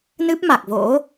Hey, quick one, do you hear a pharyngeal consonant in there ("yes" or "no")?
no